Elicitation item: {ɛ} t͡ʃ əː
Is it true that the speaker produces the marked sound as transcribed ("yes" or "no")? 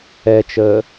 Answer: yes